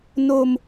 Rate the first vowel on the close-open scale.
mid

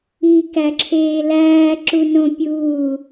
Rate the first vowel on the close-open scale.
close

